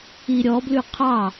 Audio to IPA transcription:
i ɾʲ ɔ b l ʉ qʰ ɑ

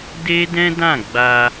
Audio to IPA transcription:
d e˦ d ɛ̃˦ d ã˦˨ ɡ͡b a˧

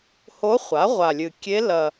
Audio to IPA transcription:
h o˧˥ χʷ a˩˥ ʁʷ a˨˩ lʲ ɨ˨˩ kʲ e˧˥ l ɐ˨˩

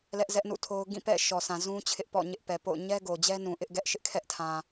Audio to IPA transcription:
l ɛ˦ ʔ z ɛ˦ ʔ n ṵ˦˨ tʰ o˦ ʊ̯ ɡ ĩ˦˨ p ɛ̰˦˨ ʃ ɔ˨ sʰ ã˨ z ũ˦ t͡ɕʰ ɪ˦ ʔ p ɔ̰˦˨ ɲ ɪ˦ ʔ p ɛ˨ p o̰˦˨ ʊ̯ ɲ ɛ˦ ɡ o˨ d͡ʑ ɛ˦ n ũ˨ ʔ ɪ˦ ʔ ɡ ɛ˦ ʔ ʃ ɪ˦ ʔ kʰ ɛ˦ ʔ tʰ ã˨

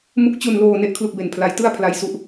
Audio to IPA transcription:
m u˦˥ k̚ t͡ɕ u˧ n l oː˧ n e˥˩ ʔ kʰ l u˥˩ k̚ b e˧ n pʰ l a˦˥ j t ɯ˥˩ a̯ pʰ l a˧ j s u˦˥ ʔ

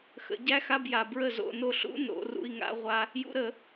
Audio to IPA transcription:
x ə̰˨˩˦ ɟ æ˦˥ x a˧˥˧ b j a˨ b ɹ ə˥˩ z o̰˧˥˧ n o˥˩ ɬ ṵ˦˥ n o̰˨˩˦ r ṵ˧˥˧ i̯ ŋ a̰˦˥ ʁʷ a˦˥ | j ṵ˨˦ ɾ ə˨˩˦

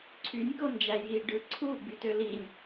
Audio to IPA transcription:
ǀʰ y nʲ k o n d͡ʒ æ j i ɖ ɯ ǀʰ u ɡ͡b y t ø l i nʲ

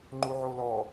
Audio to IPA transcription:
ŋ͡ǃ u ʕ o l ɔ

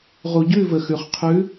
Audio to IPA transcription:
ʁ u˨ ɟ ʉ˦˨ v ə˨ x ʉ˨ χ qʰ ʉ˨˦

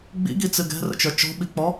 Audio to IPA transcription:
ɡ͡b ḭ ɡ i t͡s ɨ ɡ ɛ̤ r ə̰ t͡ʃ ə˞ t͡ʃ ɔ̤ ɓ i k͡p ɔ

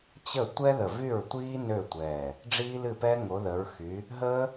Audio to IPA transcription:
t͡ɕ ə˥˩ tʷ ɛ˦˥ ð ə˧˩ v y˥˩ ɹ tʷ iː˦˥ n ø˥˩ tʷ ɛː˧˩ | ɖ͡ʐ iː˦˥ l ɨ˥˩ p ɛ˦˥ ŋ o˨˦ ð ə˨˦ ɹ x y˨˦ | ɦ əː˦˥

